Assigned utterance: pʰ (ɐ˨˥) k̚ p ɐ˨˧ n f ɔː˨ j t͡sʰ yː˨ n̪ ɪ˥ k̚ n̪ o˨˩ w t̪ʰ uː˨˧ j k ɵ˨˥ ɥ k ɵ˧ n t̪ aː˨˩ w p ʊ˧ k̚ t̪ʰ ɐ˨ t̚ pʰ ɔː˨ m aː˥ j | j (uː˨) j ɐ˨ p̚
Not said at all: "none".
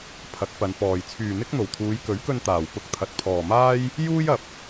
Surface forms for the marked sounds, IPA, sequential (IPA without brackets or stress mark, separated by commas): ɐ˨˥, uː˥